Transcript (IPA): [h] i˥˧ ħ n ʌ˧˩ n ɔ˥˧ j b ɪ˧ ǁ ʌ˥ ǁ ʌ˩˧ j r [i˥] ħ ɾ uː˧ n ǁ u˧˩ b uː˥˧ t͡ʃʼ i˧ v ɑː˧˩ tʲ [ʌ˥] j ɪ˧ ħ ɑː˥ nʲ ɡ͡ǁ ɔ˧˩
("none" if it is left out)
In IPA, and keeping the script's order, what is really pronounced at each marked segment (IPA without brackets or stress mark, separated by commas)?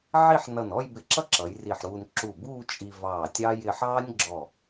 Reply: ʕ, i˧˩, ɑ˥